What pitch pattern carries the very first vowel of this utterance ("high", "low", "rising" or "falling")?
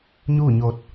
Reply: falling